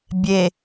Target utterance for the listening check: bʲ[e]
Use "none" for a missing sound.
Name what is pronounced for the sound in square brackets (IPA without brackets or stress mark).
e